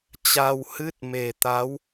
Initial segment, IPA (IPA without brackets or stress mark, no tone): t͡ɕ